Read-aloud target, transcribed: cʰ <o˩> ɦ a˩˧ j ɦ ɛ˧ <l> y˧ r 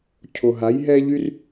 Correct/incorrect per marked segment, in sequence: correct, incorrect: ʎ

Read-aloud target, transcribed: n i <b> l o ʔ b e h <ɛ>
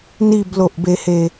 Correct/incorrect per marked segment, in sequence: correct, incorrect: e

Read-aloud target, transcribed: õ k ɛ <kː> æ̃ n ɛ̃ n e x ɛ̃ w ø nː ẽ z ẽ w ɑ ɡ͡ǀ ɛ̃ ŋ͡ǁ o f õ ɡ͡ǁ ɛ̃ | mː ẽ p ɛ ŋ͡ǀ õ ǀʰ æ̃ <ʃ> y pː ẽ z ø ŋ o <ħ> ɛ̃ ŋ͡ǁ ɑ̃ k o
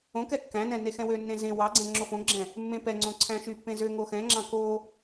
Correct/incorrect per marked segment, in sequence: correct, correct, incorrect: x

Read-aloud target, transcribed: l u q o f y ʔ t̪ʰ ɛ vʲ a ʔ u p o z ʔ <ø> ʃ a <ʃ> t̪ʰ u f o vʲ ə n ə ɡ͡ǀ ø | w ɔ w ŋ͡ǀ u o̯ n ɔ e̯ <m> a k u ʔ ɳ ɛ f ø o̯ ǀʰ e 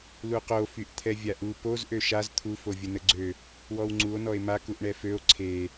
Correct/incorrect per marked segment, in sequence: correct, incorrect: z, correct

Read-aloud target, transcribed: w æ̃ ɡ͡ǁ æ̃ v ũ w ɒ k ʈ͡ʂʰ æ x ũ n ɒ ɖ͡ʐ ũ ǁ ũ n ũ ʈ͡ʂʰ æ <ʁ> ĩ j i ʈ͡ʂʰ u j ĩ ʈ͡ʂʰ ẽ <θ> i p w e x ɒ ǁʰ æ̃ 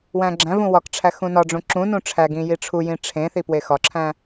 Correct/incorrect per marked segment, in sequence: incorrect: ɡ, correct

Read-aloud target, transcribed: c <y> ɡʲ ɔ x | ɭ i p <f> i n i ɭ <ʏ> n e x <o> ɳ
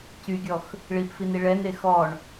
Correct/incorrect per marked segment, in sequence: correct, correct, incorrect: ɛ, incorrect: ɔ

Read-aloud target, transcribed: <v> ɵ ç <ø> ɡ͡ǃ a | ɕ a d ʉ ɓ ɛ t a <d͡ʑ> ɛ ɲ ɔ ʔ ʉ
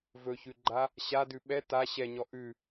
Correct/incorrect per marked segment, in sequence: correct, incorrect: ʉ, incorrect: ɕ

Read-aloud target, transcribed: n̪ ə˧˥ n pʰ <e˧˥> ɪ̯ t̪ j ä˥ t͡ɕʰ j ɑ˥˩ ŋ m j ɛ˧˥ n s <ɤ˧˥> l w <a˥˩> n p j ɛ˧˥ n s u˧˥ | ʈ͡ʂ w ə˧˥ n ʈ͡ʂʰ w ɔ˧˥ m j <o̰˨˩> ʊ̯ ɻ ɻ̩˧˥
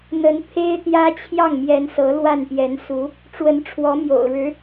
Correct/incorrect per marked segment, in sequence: incorrect: e˥, correct, correct, correct

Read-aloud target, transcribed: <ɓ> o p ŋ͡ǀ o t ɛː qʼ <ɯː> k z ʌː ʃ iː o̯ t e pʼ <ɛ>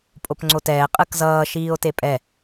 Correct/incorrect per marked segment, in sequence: incorrect: pʼ, incorrect: ɯ, correct

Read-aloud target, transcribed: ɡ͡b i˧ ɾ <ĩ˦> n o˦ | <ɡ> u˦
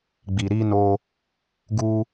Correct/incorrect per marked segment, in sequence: incorrect: i˦, correct

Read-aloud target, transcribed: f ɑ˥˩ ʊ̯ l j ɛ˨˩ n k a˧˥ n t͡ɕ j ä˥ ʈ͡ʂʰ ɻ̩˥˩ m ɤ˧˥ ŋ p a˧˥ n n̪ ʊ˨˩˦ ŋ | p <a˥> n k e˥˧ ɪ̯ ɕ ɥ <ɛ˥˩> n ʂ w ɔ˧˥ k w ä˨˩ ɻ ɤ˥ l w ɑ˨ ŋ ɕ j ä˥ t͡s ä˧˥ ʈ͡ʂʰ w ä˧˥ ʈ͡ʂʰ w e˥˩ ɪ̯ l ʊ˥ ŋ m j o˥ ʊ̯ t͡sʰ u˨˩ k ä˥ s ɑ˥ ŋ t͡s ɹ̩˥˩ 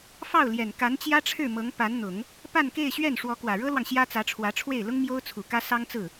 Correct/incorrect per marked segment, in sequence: incorrect: a˥˧, correct

